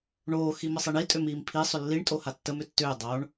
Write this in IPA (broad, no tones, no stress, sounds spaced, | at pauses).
ɳ oː x i m ə sˤ i ɳ i tʼ ʏ m iː m pʰ i sˤ ʏ lː i ɳ tʼ o h a tː ə m ʏ tː ʏː dˤ o ɳ